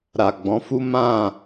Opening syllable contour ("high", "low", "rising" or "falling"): low